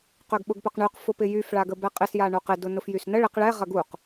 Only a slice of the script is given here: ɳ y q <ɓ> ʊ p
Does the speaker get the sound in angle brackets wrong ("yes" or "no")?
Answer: yes